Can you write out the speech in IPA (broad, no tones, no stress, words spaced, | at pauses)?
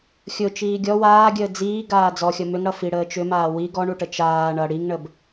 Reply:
xʲʊ t͡ʃiːɡʲɔ waːɡʲəː d͡ziː ɡaːd͡zɔxʲʌ mʏŋ ɽʌfiɽəː t͡ʃʏmaː wi ɡɔɳuʈə t͡ʃaː ɳʌ ɽiŋɳəb